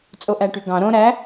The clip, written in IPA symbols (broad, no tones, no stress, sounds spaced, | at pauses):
t͡sʼ o ʔ æ ʈ y ɡ ɑ̃ ɾ õ ɾ æ